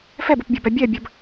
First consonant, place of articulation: labial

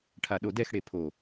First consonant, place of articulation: retroflex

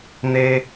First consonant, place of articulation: alveolar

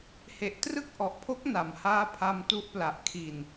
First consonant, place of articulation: glottal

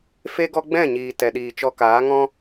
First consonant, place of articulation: labial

